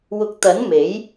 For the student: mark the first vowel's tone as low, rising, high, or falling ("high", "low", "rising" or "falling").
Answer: low